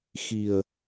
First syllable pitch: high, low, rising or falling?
low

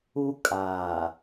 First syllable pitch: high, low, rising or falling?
high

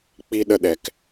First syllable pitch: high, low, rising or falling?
high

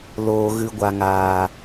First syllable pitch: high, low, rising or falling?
low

